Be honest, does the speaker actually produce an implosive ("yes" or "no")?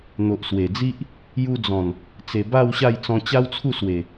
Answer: no